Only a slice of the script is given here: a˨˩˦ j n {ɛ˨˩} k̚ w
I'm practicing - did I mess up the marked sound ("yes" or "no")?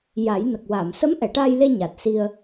yes